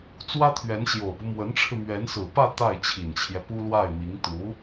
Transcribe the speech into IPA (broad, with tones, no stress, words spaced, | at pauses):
t͡swä˥t̪ʰɥɛ˧˥nɕjo˨˩ʊ̯pu˦ mwə˧˥nʈ͡ʂʰɻ̩˧mɥɛ˧˥n sɹ̩˨˩pä˥˧ t̪a˥˩ɪ̯t͡ɕʰi˨˩nt͡ɕʰjɛ˦pu˥ lwa˥˩ɪ̯mi˧˥ŋ t̪u˧˥